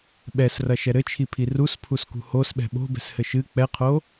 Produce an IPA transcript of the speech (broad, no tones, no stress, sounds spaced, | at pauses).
ɓ ɛ s r ɐ ʃ ɛ ɾ ɘ t͡ʃʰ i pʰ i r u s pʰ u s k ṳ h o s ɓ ɛ̤ ɓ o̤ b ɛ̤ s h ɘ ʃ ɨ k͡p ɛ qʰ o